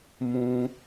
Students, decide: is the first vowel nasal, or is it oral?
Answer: nasal